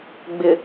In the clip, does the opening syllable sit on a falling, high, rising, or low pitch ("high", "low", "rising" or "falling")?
low